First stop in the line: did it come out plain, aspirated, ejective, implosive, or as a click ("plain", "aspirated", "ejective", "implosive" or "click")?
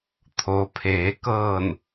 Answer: aspirated